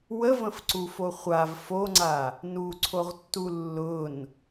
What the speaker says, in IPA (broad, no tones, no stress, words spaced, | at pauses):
wəvə̃fǀufo χʷav foŋ͡ǀa | nuǀʰoʁtːu lːʊn